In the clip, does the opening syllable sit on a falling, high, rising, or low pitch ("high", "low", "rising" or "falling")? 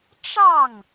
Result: falling